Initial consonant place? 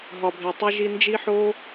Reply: glottal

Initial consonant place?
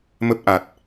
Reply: labial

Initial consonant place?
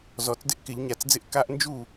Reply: alveolar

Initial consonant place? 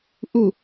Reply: glottal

